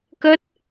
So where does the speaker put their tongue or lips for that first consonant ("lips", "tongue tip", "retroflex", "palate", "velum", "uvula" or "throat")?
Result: velum